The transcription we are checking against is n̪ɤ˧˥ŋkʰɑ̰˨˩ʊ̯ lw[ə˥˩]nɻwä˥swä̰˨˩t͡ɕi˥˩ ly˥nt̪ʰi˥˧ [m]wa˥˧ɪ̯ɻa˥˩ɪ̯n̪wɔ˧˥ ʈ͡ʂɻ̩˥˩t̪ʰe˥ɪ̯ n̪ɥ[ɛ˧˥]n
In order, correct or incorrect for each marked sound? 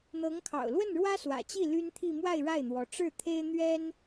correct, correct, incorrect

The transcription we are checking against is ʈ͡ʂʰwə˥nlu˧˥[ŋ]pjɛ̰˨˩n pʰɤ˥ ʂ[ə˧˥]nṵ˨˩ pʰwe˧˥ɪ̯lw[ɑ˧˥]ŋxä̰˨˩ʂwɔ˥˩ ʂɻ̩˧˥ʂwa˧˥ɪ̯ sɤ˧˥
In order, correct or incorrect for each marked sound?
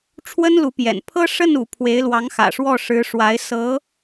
incorrect, incorrect, correct

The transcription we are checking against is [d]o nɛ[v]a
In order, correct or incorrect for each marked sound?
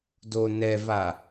correct, correct

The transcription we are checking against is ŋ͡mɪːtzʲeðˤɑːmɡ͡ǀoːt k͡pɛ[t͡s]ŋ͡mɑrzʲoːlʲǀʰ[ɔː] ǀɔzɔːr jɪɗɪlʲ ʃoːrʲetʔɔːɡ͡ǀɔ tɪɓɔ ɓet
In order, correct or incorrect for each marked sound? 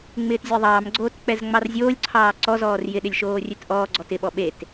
incorrect, incorrect

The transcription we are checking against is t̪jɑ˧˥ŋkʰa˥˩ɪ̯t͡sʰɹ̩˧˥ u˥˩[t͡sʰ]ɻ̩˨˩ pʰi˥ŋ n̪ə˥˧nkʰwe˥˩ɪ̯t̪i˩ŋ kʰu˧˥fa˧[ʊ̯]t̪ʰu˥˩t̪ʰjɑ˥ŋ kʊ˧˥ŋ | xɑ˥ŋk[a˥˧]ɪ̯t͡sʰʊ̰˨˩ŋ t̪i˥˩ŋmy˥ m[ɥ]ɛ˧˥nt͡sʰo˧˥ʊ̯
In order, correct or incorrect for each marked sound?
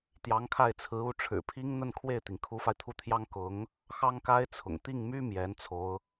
incorrect, incorrect, incorrect, incorrect

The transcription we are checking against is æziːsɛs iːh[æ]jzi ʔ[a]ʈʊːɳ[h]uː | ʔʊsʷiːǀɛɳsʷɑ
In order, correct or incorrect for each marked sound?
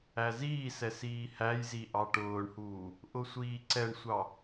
correct, incorrect, correct

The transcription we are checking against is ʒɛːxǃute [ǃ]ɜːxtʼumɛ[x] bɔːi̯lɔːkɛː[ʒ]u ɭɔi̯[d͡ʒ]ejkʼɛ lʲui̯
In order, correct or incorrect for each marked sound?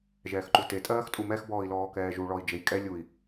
incorrect, correct, correct, correct

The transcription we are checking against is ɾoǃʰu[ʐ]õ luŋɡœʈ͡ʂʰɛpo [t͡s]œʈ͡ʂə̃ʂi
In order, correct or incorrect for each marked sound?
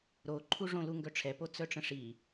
correct, correct

